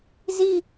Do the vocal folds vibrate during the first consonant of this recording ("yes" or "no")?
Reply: yes